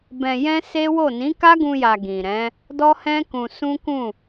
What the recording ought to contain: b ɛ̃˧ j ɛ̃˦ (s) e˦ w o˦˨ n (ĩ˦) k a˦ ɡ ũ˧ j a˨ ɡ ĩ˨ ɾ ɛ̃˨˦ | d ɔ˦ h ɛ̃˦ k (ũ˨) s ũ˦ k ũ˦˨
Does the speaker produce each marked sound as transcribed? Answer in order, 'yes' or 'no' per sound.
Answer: yes, no, no

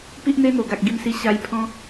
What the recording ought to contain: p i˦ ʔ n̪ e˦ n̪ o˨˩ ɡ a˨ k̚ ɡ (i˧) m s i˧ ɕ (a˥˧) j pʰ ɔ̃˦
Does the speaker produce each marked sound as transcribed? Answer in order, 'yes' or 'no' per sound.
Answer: yes, no

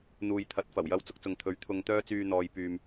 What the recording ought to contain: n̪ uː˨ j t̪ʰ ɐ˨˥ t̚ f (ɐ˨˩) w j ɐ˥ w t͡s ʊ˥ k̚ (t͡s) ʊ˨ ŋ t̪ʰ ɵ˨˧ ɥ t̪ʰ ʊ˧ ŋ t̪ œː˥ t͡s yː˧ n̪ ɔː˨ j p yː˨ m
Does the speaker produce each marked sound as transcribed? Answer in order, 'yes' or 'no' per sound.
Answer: yes, yes

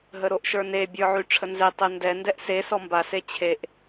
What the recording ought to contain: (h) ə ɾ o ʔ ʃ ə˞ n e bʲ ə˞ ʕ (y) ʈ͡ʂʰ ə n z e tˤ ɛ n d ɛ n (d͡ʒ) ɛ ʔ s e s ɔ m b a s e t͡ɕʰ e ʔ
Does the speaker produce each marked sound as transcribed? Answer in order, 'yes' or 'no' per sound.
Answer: no, yes, no

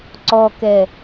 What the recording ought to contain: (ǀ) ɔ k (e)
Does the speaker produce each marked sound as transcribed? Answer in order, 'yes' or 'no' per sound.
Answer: yes, no

